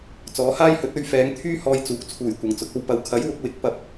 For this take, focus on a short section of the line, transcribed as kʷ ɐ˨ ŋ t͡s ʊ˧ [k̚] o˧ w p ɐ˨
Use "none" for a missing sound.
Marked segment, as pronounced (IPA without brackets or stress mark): k̚